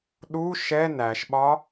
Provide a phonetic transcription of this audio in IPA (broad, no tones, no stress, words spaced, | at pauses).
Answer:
ɗu ʃɛ næʃɓɒ